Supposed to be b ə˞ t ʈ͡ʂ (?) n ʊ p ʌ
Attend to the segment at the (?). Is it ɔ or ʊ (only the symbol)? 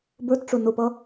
ʊ